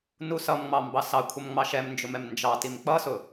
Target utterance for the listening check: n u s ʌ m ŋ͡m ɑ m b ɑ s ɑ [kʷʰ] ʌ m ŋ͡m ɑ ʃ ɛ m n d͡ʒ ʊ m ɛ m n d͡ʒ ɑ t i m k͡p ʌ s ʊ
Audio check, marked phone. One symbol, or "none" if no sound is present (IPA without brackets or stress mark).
kʷʰ